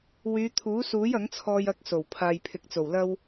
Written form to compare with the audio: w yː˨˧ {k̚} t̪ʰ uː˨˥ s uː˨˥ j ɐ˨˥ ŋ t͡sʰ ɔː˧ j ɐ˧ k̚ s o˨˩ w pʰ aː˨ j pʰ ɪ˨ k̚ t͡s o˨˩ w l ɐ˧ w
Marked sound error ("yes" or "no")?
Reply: yes